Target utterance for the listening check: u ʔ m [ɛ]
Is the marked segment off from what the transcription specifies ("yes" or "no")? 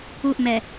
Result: no